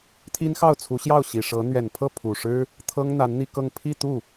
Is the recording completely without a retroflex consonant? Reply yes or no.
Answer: no